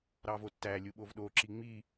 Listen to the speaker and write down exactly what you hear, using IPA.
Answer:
ɾɑvotːælʲu ɓovɗoǁi ŋ͡mi

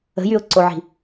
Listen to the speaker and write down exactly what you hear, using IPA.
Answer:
ə̤jyʊ̯ǀoʕi̤

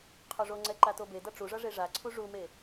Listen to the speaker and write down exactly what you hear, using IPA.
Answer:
qʰoʐoŋ͡ǀɛ ǃatobedʌ ʈ͡ʂuʐʌ ʐeʐaǀʰu ʐume

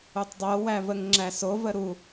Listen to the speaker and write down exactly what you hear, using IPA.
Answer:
utˤdˤowævəŋ ŋ͡ǁæsov əɾu

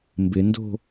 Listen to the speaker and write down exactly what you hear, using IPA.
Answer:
mbɪndo̤

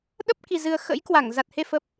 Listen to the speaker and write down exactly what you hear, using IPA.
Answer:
ɗə˦˥p̚ki˨˩zɨ˨˩ə̯ xə̰˧˥jkwa˧˩ŋ za˨˩t̚he˧ fə˨˩p̚

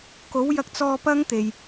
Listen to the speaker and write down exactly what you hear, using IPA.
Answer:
ko˨˥wjɐ˧k̚t͡sɔː˧ pɐ˥ŋt̪e˨j

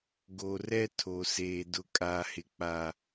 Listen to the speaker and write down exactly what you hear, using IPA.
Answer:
ɡo˨rɛ˦ tʰo˨seː˨ dʊ˨kʼaː˨hɪ˨k͡pa˨

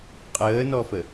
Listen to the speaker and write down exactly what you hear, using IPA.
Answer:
qʼəːnɔfə

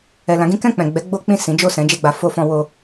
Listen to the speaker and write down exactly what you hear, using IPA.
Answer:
ɛ˨ lã˨˦ɡĩ˦ kɛ̃˦˨k͡pɛ̃˨ɡ͡bɛ˨˦ ɡ͡bo˦k͡pĩ˦˨ sĩ˨˦d͡ʒo˦˨sɛ̃˨˦ d͡ʒɛ˦˨ɡ͡ba˧ fo˧fɔ̃˧ wo˧

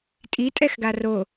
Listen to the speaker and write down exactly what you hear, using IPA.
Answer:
tʼitʼɛxɡa ro

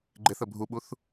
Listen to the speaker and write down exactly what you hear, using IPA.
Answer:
ɡ͡ǃɪθə bʱuɓuθ

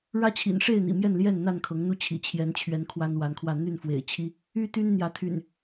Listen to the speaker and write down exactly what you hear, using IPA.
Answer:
ɻä˦t͡ɕʰḭ˨˩nʂe˥˨ɪ̯n̪ḭ˨˩ mjɛ˥˨nljɛ˥˨nn̪a˥˨nkʰɤ˨˦ŋ n̪u˦t͡ɕʰḭ˨˩ t͡ɕʰjɛ˨˦nt͡ɕʰɥɛ˨˦n kʰwa˦nwa˨˦nkʰwä˥˨ n̪y˥˨n fwḛ˨˩ɪ̯t͡ɕʰi˦ | y˦t̪y˦n n̪jä˨˦t̪ʰy̰˨˩n

